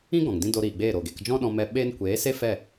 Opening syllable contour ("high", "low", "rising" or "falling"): high